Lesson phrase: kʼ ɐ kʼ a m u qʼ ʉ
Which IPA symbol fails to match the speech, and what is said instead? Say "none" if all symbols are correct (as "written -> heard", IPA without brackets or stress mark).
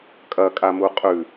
none